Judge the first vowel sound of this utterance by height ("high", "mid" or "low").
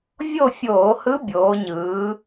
mid